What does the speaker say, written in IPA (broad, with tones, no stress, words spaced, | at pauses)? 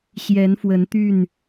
ɕjɛ˨˦nfwə˨˦n t̪y˥˨n